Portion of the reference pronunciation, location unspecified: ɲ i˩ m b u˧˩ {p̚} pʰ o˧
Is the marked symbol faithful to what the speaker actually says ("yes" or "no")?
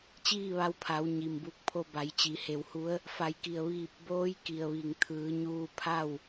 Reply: no